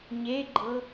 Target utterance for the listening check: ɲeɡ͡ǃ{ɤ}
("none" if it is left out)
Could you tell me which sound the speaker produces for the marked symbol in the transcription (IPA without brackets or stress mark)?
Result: ɤ